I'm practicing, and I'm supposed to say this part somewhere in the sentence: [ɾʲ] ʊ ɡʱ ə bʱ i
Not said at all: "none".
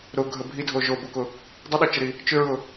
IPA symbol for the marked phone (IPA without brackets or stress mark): ɾ